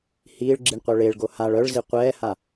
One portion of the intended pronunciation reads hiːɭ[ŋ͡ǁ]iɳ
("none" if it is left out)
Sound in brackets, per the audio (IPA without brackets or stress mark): ɡ͡ǁ